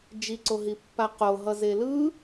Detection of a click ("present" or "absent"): present